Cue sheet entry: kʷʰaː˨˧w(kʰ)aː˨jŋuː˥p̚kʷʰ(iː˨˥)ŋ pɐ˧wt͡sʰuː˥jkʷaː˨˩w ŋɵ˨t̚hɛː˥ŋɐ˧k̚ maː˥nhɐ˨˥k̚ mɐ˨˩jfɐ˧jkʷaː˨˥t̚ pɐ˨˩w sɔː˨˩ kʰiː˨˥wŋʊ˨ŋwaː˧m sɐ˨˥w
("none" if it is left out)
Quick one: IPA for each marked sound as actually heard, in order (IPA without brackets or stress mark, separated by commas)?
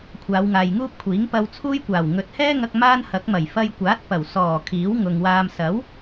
ŋ, iː˨˥